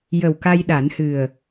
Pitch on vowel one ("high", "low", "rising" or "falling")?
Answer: low